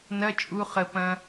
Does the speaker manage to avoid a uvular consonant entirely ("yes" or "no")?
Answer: no